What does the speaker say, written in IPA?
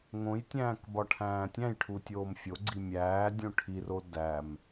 ŋ õ j tʲ æ̃ː k b ɒ ʈʰ æ̃ː tʲ æ̃ j ʈʰ u tʲ oː m fʲ o ɡ͡ǀ i mʲ æː dʲ õ ʈʰ i r o d æ m

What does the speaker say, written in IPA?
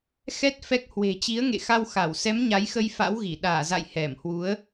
x ɛ˦˥ t̚ f ɛ˦˥ k̚ h w e̤˨˩ t͡ɕ i˨˦ ə̯ ŋ ḛ˧˨ x a˧ w x a˧˩ w s ɛ˨˦ m ɲ a˨˦ j x ə˧ j f a̰˧˥ w ɣ i˧˩ ɗ aː˧˩ z a̰˧˨ j h ɛ˧˩ m h w u˨˦ ə̯

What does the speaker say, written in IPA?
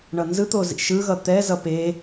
ɳ ʌ n z ɯ t̪ o z ḭ ʃ ɯ ɣ ʌ t̪ ɛ z ʌ p e

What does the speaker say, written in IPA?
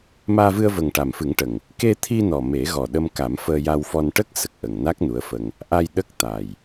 m aː˧ v ɨ˧ ə̯ v ə˨˩ ŋ ʈ a˨˩ m f ɨ˨˩˦ ŋ ʈ ə˨˩ ŋ | k e˧ t̪ʰ i˧ n ɔ˨˩ m e˨˩˦ ɣ ɔ˨˩ ɗ ə˧ m k a˨˩˦ m f əː˧ j a˧ w f ɔ˧ n ʈ ə˦˥ k̚ s ə˨˩ k̚ ʔ ə˨˩ ŋ n a˦˥ k̚ n u˧˥ ə̯ f ə˧ ŋ | ʔ a˧ j ɗ ə˦˥ k̚ t̪ a˨˩ j

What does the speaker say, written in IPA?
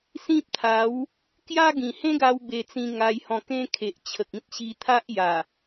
s ĩ˦ p̚ t̪ʰ a˨˦ w | k j a˦ ɡ ĩ˨˩ h ẽ˦ ɡ a˧ w b e˧ t͡s ĩ˧ ŋ a˧ j h ɔ̃˧ k ẽ˦ kʰ e˨ ʔ t͡ɕʰ ə˨ k̚ ĩ˦ t̚ ɕ i˧ t̪ʰ a˦ ʔ j a˨˩

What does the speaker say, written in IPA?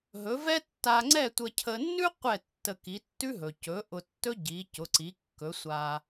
ɦ ɵ˩˥ v ɛ˥ tː a˧ ŋ͡ǀ ɛ˥˩ tʷ ə˧ cʰ ə˧ nː ʉ˥ qʷ ɛ˥˩ tː ə˧ k i˩˥ tː ʉ˥ ɦ ɵ˩ c ɵ˩˥ ʔ ʊ˧ tː ɵ˥ ɟ i˩˥ c ʊ˩˥ ǀ i˩˥ kː ɵ˩˥ sʷ a˧

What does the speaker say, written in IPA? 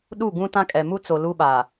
ɗ u˦˨ ɡ ũ˦ t ã˦ kʼ ɛ˨ m u˦ t͡s o˨ l u˦ ɓ a˨

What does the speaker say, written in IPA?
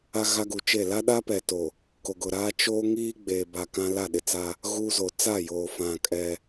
a˦ ɣ a˦ ɡ u˨ t͡ʃ e˦˨ l a˦ ɗ a˦ p ɛ˨ t o˨ | k o˨ ɡ ʊ˨ ɾ aː˦ t͡ʃ oː˦ ŋ iː˦ ɡ͡b eː˨ b a˨ k ã˦ l a˦˨ ɗ ɪ˨ t͡s a˦ | ɣ uː˦ z o˨ t͡s a˦˨ j oː˨ f ã˨ kʼ ɛ˦

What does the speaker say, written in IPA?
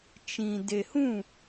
t͡ʃ ĩ˨ d e˨ h ũ˦˨

